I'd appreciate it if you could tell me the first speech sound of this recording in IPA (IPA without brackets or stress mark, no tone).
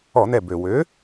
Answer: ɔ